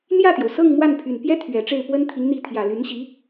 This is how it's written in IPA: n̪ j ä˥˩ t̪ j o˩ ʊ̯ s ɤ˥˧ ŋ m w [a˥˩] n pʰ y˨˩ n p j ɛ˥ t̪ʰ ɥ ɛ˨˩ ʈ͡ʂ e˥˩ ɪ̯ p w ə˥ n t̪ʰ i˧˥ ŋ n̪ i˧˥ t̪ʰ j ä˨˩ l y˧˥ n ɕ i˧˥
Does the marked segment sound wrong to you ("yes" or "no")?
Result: no